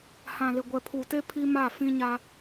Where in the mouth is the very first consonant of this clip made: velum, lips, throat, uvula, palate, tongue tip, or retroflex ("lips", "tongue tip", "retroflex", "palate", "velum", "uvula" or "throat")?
throat